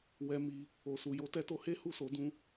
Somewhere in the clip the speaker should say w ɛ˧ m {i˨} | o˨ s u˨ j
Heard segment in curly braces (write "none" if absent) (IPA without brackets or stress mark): i˧